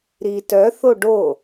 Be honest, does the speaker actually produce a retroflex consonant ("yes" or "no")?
yes